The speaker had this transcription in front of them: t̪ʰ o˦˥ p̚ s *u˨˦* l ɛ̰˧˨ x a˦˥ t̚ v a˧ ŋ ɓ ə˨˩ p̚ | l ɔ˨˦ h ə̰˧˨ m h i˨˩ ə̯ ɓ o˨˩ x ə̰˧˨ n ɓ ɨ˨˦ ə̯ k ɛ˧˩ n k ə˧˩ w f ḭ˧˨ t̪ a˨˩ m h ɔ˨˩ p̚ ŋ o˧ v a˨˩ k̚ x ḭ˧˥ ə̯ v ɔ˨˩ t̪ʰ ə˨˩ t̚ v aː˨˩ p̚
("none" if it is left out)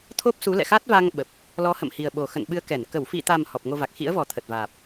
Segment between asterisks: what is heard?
u˨˦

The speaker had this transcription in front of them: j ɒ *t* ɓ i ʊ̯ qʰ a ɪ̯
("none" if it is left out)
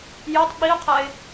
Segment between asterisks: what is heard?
tˤ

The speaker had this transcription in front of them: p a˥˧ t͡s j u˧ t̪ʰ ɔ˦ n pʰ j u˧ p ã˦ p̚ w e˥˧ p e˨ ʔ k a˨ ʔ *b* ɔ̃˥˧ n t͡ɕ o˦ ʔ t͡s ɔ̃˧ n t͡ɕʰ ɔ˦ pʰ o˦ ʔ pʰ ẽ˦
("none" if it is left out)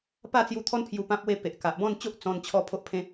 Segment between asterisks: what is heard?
b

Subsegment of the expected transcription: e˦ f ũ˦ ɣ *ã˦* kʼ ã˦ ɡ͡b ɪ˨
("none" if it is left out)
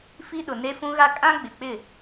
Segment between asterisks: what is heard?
a˦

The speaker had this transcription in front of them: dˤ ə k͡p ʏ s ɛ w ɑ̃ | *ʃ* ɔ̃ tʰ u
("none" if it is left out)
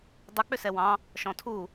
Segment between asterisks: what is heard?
ʃ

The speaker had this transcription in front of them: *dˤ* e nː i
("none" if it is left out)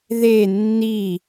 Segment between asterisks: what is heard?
ð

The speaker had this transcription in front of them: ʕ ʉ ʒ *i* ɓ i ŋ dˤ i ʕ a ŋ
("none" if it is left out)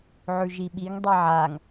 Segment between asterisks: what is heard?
i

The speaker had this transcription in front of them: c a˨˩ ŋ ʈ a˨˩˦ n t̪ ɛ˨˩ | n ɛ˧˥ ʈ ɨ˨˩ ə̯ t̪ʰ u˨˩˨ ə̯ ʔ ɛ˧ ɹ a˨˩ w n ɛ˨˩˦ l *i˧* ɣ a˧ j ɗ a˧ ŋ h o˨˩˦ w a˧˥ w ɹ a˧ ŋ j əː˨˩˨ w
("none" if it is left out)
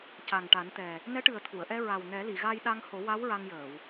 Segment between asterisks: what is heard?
i˨˩˨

